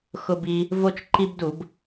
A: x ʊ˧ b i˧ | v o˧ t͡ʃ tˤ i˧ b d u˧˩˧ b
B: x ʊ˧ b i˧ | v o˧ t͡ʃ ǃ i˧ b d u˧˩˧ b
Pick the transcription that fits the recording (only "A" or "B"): B